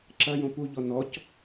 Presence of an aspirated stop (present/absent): absent